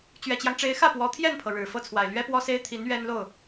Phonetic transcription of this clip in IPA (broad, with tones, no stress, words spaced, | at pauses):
t͡ɕɥɛ˨˩t͡ɕjɑ˦ŋʈ͡ʂe˧˥ɪ̯ xä˥˩pwɔ˧˥t̪ʰjɛ˥˩npʰɤ˩ ɻɻ̩˨˩ fɤ˥˩t͡sʰwa˨˩ɪ̯ lɥɛ˥pwɔ˥se˥ɪ̯ t̪ʰi˧˥n ɥɛ˥nlo˥˩ʊ̯